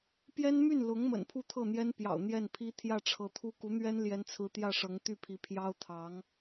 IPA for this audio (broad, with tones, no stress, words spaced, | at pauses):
pjɛ˥nmy˥˩n lʊ˧˥ŋ mə̰˨˩n pʰu˥˧t̪ʰɤ˥˩n̪jɛ˥npjɑ̰˨˩ʊ̯ n̪jɛ˥˩npʰi˥ t̪ʰjä˥˩ʈ͡ʂʰɤ˧˥t̪ʰu˥ ku˧˥n̪ɥɛ˥n ljɛ˥nt͡sʰɹ̩˥ t̪jä˥˩ʂɤ˧˥ŋt̪y˥˩pʰi˧˥ pʰjɑ˥ʊ̯t̪ʰɑ˧˥ŋ